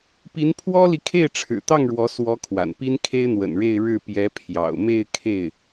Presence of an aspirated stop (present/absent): present